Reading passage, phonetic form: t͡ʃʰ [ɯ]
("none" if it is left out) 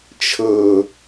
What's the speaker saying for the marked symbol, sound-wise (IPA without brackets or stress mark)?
ɤ